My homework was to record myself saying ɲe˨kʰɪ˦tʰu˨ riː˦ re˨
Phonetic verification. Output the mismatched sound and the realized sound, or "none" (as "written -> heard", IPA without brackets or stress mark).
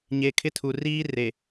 none